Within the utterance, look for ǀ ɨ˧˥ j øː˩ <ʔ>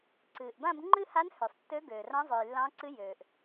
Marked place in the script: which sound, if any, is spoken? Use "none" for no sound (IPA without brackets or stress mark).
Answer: ʔ